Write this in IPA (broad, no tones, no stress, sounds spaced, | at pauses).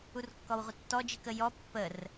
u r kː ɔ w ʁʷ ə tː ɔ d͡ʒ i k ə j ɔ pː ə r